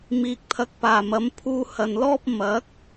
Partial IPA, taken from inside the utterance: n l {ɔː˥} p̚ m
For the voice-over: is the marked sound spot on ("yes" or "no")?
yes